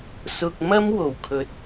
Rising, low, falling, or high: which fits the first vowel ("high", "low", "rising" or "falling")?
low